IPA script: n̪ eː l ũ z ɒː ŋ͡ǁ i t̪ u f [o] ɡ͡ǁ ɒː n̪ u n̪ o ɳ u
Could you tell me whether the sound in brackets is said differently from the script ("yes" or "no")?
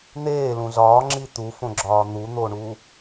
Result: yes